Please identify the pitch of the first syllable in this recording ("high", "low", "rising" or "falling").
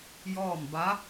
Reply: falling